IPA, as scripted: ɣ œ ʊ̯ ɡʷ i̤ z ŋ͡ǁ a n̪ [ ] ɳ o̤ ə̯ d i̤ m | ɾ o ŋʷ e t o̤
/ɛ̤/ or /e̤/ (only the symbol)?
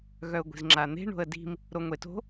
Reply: e̤